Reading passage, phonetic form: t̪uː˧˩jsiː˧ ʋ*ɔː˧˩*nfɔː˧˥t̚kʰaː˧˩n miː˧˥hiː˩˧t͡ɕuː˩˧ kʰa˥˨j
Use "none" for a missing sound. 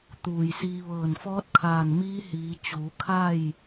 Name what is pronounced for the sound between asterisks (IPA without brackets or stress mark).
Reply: ɤː˧˩